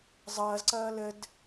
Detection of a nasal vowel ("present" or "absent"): absent